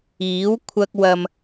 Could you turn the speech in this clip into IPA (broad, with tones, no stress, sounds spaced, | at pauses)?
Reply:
iː˨˥ w kʷʰ ɐ˥ k̚ w ɐ˧ m